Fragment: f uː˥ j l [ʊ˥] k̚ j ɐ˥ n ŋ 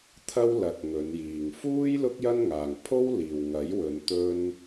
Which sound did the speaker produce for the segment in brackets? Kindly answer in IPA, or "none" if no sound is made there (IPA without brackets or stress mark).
ʊ˥